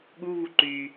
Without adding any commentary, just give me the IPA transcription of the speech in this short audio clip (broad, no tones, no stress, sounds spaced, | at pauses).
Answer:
ɠ u β u ǃ y